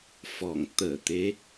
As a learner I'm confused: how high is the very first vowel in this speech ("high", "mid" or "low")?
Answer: mid